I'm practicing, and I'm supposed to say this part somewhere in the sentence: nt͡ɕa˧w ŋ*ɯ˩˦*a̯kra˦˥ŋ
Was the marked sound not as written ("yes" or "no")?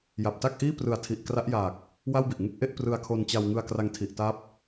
yes